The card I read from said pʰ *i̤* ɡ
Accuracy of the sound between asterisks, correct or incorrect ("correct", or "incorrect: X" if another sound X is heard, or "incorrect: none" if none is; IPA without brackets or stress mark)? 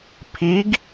incorrect: i